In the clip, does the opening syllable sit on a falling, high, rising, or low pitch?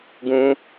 high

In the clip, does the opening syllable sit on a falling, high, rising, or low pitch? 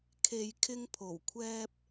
low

